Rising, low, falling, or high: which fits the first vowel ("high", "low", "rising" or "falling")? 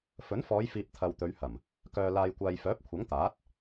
rising